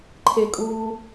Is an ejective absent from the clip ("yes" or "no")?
no